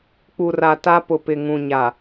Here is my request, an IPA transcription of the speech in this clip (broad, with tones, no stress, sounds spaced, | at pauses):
k͡p u˨ r a˨ t a˦ p ʊ˨ p ɪ˨ ŋ ũ˨ ɲ a˨